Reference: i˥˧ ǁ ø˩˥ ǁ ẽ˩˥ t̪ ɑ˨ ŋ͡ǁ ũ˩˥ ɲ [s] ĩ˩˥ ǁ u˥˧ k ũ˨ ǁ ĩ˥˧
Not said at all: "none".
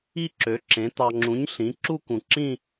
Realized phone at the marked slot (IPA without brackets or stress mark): ɬ